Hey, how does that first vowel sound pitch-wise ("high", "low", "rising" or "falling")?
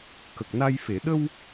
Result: low